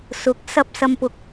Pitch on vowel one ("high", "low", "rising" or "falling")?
rising